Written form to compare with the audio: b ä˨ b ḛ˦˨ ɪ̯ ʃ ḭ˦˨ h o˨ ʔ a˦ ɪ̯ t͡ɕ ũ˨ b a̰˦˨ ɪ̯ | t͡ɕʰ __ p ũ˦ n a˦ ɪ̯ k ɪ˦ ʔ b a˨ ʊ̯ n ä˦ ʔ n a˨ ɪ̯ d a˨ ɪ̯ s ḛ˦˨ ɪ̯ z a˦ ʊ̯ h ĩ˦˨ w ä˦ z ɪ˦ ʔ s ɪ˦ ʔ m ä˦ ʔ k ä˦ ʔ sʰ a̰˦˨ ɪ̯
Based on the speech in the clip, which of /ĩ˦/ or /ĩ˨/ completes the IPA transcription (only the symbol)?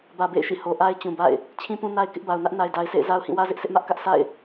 ĩ˦